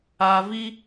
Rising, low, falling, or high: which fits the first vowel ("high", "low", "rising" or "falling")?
low